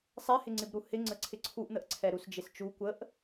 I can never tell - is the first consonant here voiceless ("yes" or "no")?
yes